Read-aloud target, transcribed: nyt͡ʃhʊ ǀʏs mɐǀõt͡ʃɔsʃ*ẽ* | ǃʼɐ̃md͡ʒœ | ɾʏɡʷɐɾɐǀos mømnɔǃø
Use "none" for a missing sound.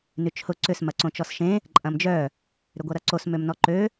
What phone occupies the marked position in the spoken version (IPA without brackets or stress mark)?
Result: ẽ